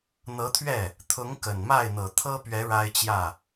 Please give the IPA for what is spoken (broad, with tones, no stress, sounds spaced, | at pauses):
n̪ ɤ˧˥ t̪ʰ ɥ ɛ˥˩ | t̪ʰ ʊ˧˥ ŋ k ə˨˩ n m a˥˩ ɪ̯ n̪ ɤ˨˩ t̪ʰ ɤ˥ p ɥ ɛ˧˥ ɻ a˥ ɪ̯ t͡ɕ j ä˥˩